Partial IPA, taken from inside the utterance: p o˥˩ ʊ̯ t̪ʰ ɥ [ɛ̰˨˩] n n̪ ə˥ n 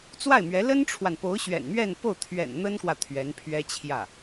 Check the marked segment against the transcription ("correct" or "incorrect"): correct